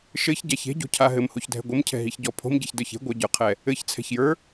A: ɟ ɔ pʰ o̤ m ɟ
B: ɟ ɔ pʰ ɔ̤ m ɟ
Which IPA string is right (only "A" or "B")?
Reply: A